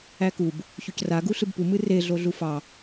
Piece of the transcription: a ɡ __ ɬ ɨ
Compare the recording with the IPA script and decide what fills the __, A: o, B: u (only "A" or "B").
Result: B